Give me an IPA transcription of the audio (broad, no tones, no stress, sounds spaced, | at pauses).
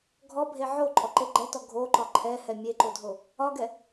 ɡʱ ɔ bʱ e ʕ o ǃʼ ɔ ǃ e ɡ͡ǃ ɛ t ɔ ɡʱ o ǃ ɒ ǃʰ ɛ h ɛ mʲ e ǃ o dʱ o | ɒ ɡ ɛ